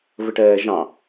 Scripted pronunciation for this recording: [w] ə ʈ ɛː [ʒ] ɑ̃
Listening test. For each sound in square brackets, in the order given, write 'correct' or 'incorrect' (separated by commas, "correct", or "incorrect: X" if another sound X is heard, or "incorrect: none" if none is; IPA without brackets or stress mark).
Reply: incorrect: v, correct